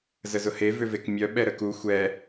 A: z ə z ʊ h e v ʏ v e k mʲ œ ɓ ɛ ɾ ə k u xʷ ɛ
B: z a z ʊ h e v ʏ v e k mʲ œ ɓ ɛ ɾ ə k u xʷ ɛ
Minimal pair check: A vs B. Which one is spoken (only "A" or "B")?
A